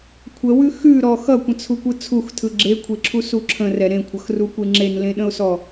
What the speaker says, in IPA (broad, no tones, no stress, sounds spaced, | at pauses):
kʷʰ ə w ʉ x ʉ ɾ ɔ x ʌ kʷ ə̃ t͡sʰ u kʷ ɯ t͡sʰ u x tʰ ɯ ɡ͡ǁ e kʷʰ e ǁʰ u s u ǁʰ ə̃ r ɛ ɾ ẽ kʷʰ ʌ x r u kʷ e ŋ͡ǁ e n l ẽ ɗ ə̃ ʊ̯ s ɔ